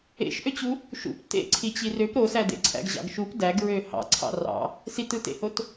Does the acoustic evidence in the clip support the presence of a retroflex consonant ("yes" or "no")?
no